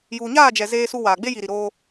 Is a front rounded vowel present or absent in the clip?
absent